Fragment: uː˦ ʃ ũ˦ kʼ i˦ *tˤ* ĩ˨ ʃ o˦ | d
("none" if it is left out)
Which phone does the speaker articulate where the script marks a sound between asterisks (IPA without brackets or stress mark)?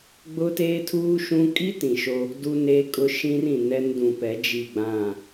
t